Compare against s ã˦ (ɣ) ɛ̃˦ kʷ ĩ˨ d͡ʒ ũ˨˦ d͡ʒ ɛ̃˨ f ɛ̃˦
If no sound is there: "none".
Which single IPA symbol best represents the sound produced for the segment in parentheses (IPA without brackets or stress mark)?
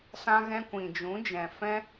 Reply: ɣ